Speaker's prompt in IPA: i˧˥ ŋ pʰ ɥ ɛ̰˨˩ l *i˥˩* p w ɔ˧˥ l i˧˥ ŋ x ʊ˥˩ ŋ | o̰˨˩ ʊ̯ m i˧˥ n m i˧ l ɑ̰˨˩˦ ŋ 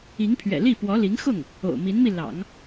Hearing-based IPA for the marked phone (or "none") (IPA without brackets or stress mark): i˥˩